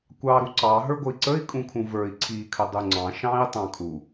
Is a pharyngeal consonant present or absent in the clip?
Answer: absent